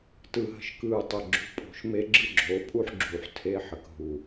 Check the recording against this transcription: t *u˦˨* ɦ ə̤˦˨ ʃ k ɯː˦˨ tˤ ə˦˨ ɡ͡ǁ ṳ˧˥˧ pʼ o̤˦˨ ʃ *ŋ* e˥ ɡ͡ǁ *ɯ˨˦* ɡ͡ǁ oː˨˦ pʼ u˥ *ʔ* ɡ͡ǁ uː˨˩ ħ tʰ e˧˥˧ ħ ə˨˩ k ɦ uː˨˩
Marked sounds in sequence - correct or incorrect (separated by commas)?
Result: incorrect, incorrect, incorrect, incorrect